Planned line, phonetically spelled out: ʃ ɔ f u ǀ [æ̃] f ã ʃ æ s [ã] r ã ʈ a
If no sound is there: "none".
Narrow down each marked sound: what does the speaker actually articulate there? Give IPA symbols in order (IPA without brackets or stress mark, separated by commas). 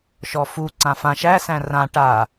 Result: ã, æ̃